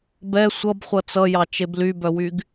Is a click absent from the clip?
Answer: yes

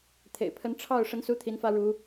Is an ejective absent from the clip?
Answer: yes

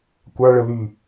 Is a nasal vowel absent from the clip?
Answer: yes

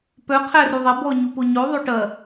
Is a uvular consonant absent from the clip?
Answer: no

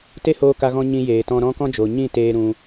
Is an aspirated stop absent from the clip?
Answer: yes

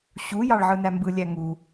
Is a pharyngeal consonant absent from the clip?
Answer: no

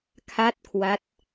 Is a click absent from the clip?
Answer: yes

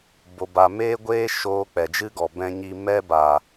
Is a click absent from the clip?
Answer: yes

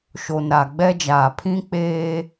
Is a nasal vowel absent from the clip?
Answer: no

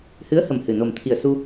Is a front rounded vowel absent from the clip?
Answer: yes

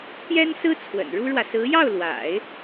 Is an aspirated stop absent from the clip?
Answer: no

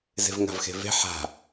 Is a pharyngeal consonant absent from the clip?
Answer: no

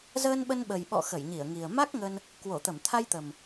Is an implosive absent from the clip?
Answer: no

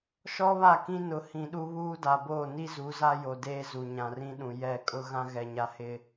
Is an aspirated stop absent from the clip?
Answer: yes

